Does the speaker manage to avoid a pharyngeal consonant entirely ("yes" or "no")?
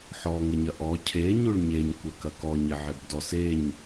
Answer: no